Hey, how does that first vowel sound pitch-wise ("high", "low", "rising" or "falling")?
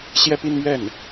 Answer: high